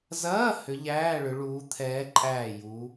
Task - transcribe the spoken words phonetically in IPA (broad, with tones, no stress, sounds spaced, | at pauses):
z ɐː˧˥˧ h ʏ˨˦ ʎ æː˧˥˧ ɭ ʏ˨˦ ɭ uː˨˦ t̪ʰ ɛː˨˦ ǃʼ æː˧˩ j u˨˦